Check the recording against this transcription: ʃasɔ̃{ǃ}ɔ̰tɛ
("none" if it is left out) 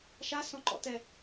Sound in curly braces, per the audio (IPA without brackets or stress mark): ǃ